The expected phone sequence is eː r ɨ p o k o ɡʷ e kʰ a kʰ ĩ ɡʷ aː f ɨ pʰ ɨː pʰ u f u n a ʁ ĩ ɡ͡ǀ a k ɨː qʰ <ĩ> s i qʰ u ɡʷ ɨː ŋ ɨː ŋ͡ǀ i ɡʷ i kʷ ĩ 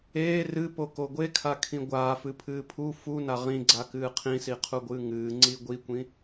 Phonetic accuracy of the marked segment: correct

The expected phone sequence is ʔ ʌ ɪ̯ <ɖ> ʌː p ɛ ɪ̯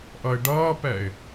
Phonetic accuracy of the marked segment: correct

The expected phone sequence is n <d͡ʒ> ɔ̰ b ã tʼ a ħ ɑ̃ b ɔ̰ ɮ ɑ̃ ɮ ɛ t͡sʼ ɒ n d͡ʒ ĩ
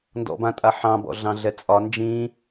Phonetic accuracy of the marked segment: incorrect: d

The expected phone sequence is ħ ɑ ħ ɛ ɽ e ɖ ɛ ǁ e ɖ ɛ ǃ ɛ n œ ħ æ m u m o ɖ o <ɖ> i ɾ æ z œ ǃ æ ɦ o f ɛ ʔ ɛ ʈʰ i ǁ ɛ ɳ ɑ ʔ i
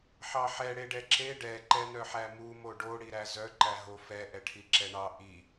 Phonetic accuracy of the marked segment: incorrect: ɽ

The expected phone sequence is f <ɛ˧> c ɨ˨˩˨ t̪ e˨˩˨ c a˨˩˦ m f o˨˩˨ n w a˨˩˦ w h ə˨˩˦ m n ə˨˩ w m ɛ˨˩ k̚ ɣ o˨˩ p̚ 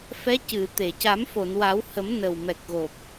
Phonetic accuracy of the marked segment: incorrect: ɛ˧˥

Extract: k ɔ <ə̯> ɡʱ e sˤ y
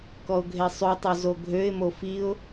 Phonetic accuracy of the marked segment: incorrect: ʊ̯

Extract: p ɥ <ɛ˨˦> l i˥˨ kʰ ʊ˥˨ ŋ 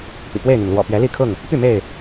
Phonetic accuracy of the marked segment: correct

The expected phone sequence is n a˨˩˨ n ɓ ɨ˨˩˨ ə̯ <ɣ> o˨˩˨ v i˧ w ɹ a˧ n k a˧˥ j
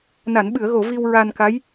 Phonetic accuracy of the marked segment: correct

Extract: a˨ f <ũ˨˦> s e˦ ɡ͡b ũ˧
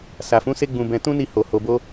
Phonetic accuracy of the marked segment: correct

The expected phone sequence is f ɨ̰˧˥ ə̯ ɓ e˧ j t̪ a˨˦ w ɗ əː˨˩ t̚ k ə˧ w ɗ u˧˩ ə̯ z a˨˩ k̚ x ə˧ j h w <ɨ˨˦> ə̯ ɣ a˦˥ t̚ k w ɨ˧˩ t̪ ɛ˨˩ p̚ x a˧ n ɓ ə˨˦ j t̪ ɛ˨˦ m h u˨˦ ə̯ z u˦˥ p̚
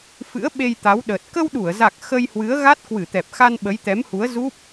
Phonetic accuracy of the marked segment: correct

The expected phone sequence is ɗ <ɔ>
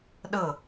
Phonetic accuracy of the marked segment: incorrect: ɤ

